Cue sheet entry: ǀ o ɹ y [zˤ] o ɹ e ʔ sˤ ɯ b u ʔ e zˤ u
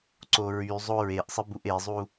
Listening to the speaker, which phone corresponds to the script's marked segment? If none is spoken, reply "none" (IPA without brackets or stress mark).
zˤ